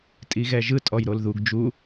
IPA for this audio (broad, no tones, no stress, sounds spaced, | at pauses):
tʼ i ɣ ɛ ʒ ɯ tʼ ɔ j ɾ o l ð u ɡ d͡ʒ u